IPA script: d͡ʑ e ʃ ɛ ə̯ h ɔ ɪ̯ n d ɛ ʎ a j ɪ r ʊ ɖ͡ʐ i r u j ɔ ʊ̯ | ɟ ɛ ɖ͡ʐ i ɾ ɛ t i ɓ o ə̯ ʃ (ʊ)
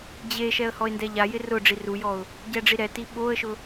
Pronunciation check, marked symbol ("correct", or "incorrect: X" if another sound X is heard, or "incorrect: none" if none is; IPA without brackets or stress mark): correct